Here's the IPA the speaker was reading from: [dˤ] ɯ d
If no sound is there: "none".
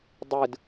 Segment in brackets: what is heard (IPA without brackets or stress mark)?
dˤ